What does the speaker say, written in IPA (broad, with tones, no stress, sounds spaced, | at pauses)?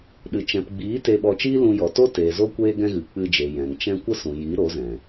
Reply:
ɗ ɨ˨ t͡ʃ ɛ̃˨ p ɡ͡b iː˨˦ t e˧ ɓ ɔ˧ t͡ʃ iː˦ l ũ˧ j ɔ˨ t o˦ t eː˨ z o˦ kʷ eː˦ ɡ ɛ̃˦ ɣ ɨ˨ k͡p ɨ˧ d͡ʒ e˨ j ɛ̃˨ ŋ t͡ʃ ɛ̃˦ kʷ ə˦ s ũ˨ j i˨˦ ɾ o˨˦ z ɛ̃˨